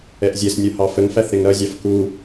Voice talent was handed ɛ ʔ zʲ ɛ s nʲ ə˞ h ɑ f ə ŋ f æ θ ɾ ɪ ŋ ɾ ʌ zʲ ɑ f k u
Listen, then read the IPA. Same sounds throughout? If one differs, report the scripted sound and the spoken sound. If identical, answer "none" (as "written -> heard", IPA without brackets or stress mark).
none